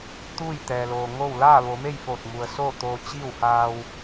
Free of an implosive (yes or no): yes